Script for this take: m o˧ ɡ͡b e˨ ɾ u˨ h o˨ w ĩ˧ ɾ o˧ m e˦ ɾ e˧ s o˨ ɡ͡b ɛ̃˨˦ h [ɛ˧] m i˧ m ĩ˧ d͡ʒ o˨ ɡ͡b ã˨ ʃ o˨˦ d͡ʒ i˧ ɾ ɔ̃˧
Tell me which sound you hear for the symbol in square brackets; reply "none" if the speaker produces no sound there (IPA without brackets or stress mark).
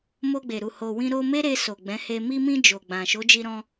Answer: e˧